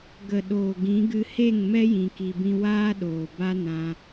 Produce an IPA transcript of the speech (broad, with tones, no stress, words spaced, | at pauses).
ɡə˨ɗoː˨ɡĩ˨˦ ɡɨ˧he˦˨ŋmɛ˦ jĩ˧ki˧bĩ˦ waː˦ɗoː˨ ba˦nã˧